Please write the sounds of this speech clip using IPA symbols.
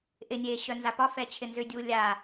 ʔ ɪ nʲ eː ɕ œ n z a p ɒ f ɛ t͡ɕʰ ɪ n z ʏ dʲ uː lʲ a

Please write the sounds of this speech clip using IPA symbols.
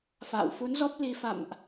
f a̰ː˧˨ w f u˨˦ n z ɔ˦˥ p̚ l i˧ f a̰˧˨ m ʔ

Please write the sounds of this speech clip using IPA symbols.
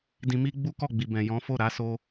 d ĩ˧ m i˦ ɡ͡b u˦ k ɔ˦˨ ɡ͡b i˨ b ɛ̃˨ j ɔ̃˨˦ f o˦˨ ɾ a˨˦ s o˧

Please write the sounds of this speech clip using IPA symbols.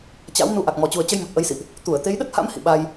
t͡ɕ a̰˧˥ w n u˧ ʔ a˨˩ k̚ m ɔ˨˩ t͡ɕ u˨˩ ə̯ t͡ɕ ə˧ j m ə˨˩ t̚ ʔ ə˨˦ j s ḭ˧˨ ʔ | t̪ u˧˩ ə̯ t̪ e˨˦ j ɗ ə˦˥ t̚ h a̰˧˥ m h ḭ˧˨ ɓ a˧ j

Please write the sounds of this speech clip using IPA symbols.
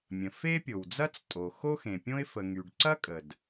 mʲ ə̃˩ f e˥ pʲ o˩ w d͡z ɐ˥ t͡s tʼ o˩ x o˥ x ẽ˩ pʲ õ˥ ɪ̯ f ə˩ ŋ y˩ ɖ ǀ ɐ˥ kʼ ə˩ d

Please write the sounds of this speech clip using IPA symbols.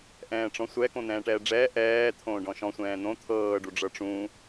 ʔ ɛ̃ː ʈ͡ʂ ɔ̃ sʷ ɛ k õ n̪ ɛ̃ː ʈ ɛː ɖ͡ʐ ɛː ʔ ɛː t̪ʰ õː ɖ ɔ̃ ʃ ɔ̃ sʷ ɛ̃ː n̪ õ t̪ʰ ɤː ɖ u ɖ͡ʐ ɤ ʈ͡ʂ ũ

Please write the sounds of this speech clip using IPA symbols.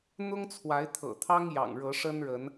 n̪ ʊ˦ ŋ t͡sʰ w a˨˦ ɪ̯ t̪ʰ ɤ̰˨˩ t̪ʰ ɑ˦ ŋ j ɑ̰˨˩ ŋ ɻ ɤ˨˦ ʂ ə˦ n ɻ ə˨˦ n

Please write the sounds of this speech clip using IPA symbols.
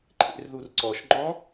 ǃʰ ḛ r ð u r ǀ ɔ ʃ ŋ͡ǃ ɔ̃

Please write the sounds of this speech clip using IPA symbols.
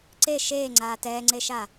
ǀ e ʃ eː ŋ͡ǀ aː t ɛː ŋ͡ǀ e ʃ a

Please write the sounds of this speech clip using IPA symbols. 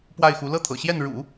p w a˥˩ ɪ̯ x u˧˥ l ɤ˥˩ t̪ʰ ɤ̰˨˩ ɕ j ɛ˥˩ n ɻ ṵ˨˩˦

